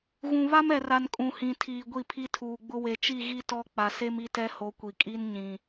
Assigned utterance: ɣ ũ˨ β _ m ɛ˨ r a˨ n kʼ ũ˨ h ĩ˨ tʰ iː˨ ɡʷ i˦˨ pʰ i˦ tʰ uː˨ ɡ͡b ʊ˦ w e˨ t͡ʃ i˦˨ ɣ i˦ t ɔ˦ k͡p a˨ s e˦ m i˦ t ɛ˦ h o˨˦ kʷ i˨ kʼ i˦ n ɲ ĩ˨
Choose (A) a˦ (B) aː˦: A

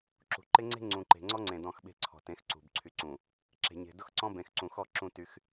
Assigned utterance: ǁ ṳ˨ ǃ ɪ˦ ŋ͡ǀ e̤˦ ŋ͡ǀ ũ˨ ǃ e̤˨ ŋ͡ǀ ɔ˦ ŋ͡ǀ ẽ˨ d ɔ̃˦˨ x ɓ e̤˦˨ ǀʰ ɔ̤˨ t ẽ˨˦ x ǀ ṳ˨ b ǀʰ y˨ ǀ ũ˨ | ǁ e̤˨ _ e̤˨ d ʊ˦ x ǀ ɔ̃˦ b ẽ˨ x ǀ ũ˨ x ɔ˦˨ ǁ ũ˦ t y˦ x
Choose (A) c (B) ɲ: B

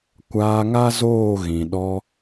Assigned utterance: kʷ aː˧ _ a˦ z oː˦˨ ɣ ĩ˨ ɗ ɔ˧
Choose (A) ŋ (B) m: A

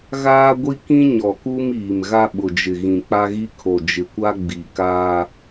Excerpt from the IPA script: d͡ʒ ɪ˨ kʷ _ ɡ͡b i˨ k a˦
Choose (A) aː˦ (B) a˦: B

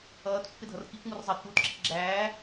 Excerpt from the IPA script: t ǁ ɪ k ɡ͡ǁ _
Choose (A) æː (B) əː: A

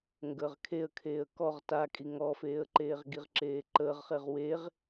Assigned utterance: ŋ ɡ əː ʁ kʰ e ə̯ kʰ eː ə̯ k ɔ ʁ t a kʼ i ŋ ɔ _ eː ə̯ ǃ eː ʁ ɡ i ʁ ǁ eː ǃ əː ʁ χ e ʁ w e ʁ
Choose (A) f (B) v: A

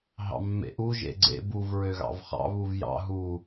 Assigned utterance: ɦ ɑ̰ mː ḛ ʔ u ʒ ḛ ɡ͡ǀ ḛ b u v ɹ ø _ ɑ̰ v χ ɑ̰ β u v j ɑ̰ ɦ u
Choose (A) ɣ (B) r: A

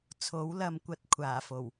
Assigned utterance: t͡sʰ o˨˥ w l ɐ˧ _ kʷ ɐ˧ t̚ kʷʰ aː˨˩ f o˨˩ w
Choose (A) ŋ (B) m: B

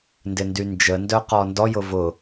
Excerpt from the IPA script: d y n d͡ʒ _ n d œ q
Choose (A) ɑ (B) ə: B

